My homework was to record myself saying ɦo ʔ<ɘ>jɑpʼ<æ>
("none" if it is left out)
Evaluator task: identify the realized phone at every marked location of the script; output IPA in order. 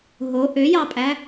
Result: ø, æ

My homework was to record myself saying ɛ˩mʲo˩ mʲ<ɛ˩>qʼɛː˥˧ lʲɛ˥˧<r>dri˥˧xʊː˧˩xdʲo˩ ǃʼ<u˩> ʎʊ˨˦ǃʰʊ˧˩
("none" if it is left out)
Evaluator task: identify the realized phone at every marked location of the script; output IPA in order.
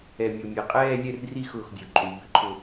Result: ɛ˩, r, u˩

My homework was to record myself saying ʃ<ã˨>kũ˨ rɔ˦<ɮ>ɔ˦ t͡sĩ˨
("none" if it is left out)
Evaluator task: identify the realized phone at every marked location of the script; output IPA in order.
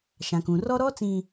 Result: ã˨, ɾ

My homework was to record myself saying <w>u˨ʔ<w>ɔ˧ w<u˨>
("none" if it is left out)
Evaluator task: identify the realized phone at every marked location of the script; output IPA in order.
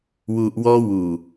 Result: w, w, u˨

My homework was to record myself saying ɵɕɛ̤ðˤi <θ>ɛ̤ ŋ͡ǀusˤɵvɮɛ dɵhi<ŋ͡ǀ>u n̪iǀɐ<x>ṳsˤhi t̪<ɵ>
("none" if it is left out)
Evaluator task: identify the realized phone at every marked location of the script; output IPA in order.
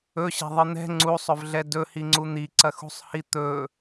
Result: n̪, ŋ͡ǀ, x, ɵ

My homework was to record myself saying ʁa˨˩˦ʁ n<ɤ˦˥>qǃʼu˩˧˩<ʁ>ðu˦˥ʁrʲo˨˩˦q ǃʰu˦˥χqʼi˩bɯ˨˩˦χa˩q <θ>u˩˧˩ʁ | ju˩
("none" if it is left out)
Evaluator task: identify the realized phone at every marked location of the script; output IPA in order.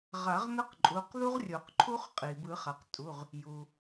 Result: ɤ˦˥, q, tʼ

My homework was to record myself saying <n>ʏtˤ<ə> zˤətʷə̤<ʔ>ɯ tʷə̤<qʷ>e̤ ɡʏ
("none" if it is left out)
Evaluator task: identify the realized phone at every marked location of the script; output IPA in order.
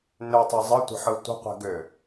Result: n, ə, ħ, qʷ

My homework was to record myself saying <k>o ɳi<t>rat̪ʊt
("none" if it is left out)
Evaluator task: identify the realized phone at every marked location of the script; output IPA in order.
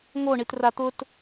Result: ŋ, t

